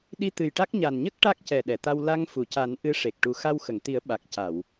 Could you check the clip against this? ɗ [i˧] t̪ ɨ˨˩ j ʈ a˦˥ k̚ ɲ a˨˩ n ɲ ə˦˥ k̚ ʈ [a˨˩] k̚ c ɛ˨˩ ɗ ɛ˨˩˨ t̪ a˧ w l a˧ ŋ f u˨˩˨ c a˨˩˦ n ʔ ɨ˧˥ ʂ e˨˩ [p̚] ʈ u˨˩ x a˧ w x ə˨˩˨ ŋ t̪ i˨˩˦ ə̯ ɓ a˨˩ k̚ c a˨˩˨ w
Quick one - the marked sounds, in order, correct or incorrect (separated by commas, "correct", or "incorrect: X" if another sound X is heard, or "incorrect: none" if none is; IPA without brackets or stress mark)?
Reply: correct, incorrect: a˦˥, incorrect: k̚